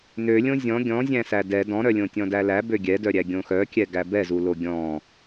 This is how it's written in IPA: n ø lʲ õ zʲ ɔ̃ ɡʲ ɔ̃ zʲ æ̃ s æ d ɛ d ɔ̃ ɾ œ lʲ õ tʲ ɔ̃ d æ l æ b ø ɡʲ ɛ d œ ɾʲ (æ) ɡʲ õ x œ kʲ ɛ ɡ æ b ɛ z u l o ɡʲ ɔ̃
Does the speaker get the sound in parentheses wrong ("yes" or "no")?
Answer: no